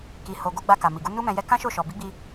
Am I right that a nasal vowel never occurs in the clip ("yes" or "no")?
no